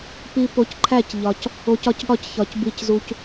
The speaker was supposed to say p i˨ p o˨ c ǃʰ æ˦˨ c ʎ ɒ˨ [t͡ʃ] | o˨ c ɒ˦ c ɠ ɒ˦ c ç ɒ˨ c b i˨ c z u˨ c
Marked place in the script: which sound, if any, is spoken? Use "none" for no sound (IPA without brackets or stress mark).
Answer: c